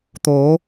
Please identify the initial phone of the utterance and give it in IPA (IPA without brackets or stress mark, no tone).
t̪